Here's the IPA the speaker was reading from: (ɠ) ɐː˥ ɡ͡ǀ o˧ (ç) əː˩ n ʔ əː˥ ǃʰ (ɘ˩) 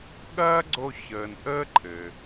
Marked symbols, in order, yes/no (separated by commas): yes, yes, yes